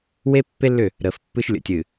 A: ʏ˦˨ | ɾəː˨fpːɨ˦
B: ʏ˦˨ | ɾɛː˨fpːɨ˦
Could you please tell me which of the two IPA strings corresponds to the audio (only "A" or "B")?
A